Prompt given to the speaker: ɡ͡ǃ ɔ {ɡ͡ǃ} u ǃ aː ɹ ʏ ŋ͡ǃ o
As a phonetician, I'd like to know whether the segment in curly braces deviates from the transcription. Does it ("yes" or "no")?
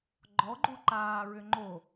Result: no